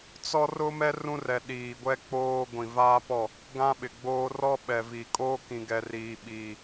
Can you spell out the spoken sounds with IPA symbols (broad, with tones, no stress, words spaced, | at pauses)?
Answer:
t͡sɔ˦rʊ˦mɛ˦ rũ˦rɛ˨ɗiː˨ɡʷɛ˦ k͡poː˦ ɡʷĩ˨vaː˦pɔ˦˨ | ɡã˦ ɓɪ˨ɡ͡boː˦ rɔ˦ɓɛ˨viː˨ kʼoː˦kĩ˨ɡɛ˨ riː˨ɓiː˨